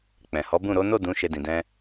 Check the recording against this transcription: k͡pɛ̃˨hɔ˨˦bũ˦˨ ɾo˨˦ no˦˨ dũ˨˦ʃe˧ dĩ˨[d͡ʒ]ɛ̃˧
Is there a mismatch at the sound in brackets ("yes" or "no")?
yes